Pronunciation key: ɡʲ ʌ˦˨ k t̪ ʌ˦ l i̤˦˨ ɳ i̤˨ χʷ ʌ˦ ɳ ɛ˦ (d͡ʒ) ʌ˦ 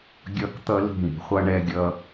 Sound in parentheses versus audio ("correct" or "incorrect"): incorrect